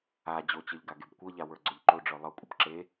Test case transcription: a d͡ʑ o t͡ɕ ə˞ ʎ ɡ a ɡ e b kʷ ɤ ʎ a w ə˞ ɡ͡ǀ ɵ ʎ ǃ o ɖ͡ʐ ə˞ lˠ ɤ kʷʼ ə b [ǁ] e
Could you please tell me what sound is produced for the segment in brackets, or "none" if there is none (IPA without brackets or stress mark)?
ǁ